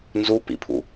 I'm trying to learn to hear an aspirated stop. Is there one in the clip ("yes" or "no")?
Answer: yes